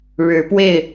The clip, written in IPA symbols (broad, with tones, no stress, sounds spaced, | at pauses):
ɻ ɻ̩˨˦ p w e˥˨ ɪ̯